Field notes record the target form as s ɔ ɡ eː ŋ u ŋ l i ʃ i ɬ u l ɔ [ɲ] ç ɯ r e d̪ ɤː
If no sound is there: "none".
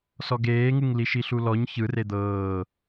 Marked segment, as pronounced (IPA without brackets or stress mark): ɲ